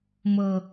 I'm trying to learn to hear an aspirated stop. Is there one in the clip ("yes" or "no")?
no